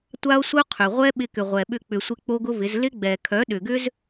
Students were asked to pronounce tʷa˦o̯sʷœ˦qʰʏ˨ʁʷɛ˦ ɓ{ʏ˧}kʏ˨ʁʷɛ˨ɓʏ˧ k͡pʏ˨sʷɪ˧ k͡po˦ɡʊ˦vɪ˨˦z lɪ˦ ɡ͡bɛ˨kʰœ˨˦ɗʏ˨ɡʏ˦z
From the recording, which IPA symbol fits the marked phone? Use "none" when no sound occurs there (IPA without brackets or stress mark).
ɪ˧